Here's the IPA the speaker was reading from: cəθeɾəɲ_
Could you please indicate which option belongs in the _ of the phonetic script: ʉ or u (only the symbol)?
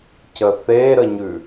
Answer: ʉ